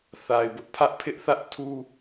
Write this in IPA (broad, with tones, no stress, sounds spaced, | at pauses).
θ a˨ ɪ̯ b ʊ˦ ʔ pʰ ä˦ ʔ pʰ ɪ˦ ʔ θ ä˦ ʔ tʰ u˦